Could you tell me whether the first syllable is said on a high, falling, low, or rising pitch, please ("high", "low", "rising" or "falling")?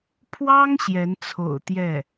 high